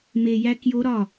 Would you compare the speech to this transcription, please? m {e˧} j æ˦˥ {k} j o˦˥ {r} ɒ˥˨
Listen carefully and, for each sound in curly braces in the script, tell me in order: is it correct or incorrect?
correct, correct, incorrect: ɾ

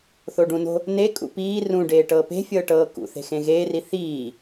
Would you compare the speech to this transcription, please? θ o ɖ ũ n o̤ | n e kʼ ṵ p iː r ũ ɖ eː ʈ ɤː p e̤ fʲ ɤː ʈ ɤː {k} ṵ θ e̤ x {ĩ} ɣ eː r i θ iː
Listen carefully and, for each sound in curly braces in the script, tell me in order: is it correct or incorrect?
correct, incorrect: ẽ

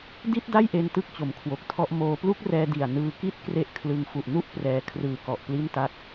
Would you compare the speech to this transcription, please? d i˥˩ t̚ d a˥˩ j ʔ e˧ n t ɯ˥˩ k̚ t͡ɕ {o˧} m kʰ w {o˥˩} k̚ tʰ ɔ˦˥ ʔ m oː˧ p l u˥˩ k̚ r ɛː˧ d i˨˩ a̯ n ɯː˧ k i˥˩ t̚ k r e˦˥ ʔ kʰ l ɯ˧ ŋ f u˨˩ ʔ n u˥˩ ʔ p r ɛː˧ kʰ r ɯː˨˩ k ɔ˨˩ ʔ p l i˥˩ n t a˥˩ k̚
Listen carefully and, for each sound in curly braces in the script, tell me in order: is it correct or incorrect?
incorrect: o˩˦, incorrect: o˨˩

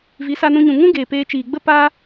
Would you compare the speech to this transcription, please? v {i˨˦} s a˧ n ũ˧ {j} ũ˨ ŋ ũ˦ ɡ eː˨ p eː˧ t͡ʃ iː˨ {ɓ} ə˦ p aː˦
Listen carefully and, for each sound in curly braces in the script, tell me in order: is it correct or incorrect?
correct, incorrect: ɲ, incorrect: ɡ͡b

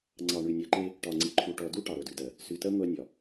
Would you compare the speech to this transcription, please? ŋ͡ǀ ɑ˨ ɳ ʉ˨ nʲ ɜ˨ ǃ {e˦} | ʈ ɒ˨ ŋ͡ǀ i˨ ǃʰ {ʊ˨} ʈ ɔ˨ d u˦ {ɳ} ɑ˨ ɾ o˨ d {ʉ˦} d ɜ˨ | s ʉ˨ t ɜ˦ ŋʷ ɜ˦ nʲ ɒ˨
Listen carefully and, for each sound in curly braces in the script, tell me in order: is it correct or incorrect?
correct, incorrect: u˨, incorrect: ʈ, incorrect: ʉ˨

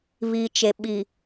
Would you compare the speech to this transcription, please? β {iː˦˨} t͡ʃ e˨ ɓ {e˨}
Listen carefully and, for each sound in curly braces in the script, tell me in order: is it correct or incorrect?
incorrect: iː˨, incorrect: i˨

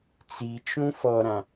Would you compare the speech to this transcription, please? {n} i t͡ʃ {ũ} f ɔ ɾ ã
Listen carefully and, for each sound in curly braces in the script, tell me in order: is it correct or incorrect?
incorrect: t͡s, correct

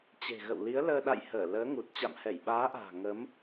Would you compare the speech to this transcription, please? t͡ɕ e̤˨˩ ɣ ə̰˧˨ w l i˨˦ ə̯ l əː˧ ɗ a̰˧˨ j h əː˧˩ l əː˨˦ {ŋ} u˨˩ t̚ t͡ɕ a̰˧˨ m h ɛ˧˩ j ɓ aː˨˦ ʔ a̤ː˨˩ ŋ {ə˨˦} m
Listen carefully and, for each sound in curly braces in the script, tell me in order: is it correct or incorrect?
correct, correct

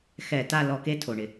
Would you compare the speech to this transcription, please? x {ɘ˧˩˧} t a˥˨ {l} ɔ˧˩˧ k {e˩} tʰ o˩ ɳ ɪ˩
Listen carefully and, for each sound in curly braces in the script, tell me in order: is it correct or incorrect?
incorrect: ɛ˧˩˧, correct, incorrect: e˥˨

